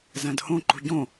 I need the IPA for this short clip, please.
z æ̃ d h õ ǃ ṳ ɟ õ

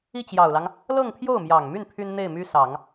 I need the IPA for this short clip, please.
i˥˩ t͡ɕ j ɑ˨˩ ʊ̯ l ɑ˦ ŋ | l ɤ˥˧ ŋ pʰ j o˥˩ ʊ̯ m j ɑ˨˩ ŋ m y˥˩ n pʰ y˥ n n̪ e˥˩ ɪ̯ m y˥ s ɑ˨˩˦ ŋ

